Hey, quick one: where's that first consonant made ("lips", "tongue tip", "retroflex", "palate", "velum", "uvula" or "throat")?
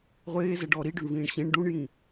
uvula